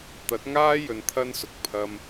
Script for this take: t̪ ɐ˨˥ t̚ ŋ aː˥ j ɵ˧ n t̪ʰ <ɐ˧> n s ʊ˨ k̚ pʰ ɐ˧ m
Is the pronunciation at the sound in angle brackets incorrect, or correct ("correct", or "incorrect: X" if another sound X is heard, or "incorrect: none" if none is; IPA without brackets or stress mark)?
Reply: incorrect: ɐ˥